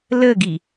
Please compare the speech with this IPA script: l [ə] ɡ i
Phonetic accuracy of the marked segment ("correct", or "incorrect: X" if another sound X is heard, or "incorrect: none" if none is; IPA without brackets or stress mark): correct